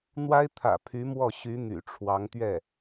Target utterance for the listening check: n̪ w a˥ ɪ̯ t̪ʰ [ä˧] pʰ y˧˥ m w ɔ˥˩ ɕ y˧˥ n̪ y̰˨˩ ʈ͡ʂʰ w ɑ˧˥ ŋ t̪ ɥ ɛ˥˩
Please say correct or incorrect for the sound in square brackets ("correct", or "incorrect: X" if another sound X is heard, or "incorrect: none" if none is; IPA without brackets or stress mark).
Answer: incorrect: ä̰˨˩